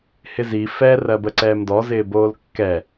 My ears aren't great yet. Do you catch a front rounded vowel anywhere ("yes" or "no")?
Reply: no